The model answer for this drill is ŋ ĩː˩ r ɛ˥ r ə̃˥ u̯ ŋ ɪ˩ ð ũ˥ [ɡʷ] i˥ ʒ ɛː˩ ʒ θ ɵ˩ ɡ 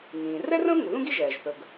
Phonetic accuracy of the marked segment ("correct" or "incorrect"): incorrect